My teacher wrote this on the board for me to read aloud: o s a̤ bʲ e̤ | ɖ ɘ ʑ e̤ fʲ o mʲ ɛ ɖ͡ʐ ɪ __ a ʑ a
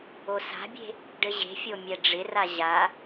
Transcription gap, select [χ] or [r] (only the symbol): r